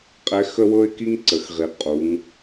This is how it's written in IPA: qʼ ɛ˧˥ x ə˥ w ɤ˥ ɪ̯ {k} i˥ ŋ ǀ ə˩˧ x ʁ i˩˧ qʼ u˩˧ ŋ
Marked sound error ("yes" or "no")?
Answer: no